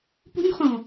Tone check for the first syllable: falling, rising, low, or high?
high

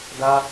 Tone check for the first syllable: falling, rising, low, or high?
high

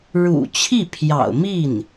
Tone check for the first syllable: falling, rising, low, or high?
low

